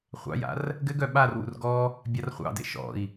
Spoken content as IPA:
χʷɑ̰ja̰r | ɡɘɡœ ɓarwṵr ɡɔ | bʲarχʷɑ̰ dḛʃɔ̰i̯

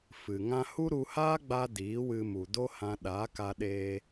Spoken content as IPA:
fɨ˨ ŋã˧hu˦ɾu˧haː˦ ɡ͡ba˦ diː˨˦wɨ˧mu˨ do˦hã˧ ɗaː˨˦ka˧ ɗeː˧

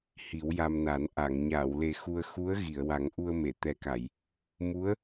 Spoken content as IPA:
hi˨˩˦wja˧mna˨˩˦n ʔa˨˩˨ŋ ɲaː˨˩˨wle˨˩ xu˧ə̯ xu˧˥ə̯ ɣi˨˩˨ə̯wa˨˩˦ŋ ʔu˧ə̯me˨˩˨ t̪ɛ˨˩ka˨˩˨j | mu˧˥ə̯

